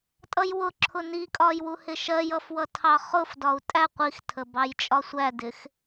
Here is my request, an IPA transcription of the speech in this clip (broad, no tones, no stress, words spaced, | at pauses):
tʼʌjwʊǁʰʊ nikʼɒj wuhɪʃɜjʌf wʌtʰɑχʊfdɒu̯ tʼæ qʷixtʰə bɑjt͡ʃʼɒsʷædɪx